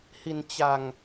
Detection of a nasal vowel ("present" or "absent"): absent